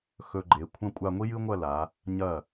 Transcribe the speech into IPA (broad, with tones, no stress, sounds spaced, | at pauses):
x ɵ˧ ɡ͡ǃ e˩˧ kʷʰ ɐ̃˥ kʷʼ a˧ ŋʷ i˥ j ɨ˥ ŋʷ ɐ˥˧ l a˩˧ | ɲ ɐ˧˩